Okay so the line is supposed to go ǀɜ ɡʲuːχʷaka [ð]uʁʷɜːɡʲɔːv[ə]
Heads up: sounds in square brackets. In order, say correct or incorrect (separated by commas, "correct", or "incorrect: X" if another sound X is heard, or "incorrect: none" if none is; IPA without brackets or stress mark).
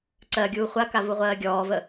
incorrect: v, correct